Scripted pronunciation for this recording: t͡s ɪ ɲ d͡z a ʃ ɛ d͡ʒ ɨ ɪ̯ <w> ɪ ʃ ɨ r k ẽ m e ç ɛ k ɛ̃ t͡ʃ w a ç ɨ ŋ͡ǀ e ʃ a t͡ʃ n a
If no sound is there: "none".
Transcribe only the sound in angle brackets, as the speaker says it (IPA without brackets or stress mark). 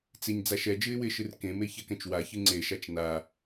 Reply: w